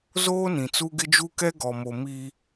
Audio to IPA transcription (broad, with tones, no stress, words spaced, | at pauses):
zoː˦nĩ˨t͡su˦ ɡɪ˦d͡ʒu˦kɛ˦ ɡɔ˨mo˨ mi˦